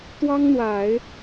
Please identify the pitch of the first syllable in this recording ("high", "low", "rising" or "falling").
high